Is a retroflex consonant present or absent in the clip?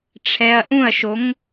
present